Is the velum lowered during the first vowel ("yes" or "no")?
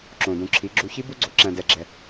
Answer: yes